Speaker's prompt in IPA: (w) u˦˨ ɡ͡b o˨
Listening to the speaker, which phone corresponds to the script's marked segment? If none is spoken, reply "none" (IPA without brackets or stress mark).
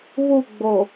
β